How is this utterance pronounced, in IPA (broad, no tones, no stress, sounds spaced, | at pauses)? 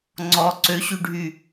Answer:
ŋ͡ǀ ɔ ǀ ø ɕ y ɖʱ y